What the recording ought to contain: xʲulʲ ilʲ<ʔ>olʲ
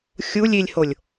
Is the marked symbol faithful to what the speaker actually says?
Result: no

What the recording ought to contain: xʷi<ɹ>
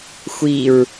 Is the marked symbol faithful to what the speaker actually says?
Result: yes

